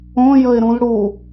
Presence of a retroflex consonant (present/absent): present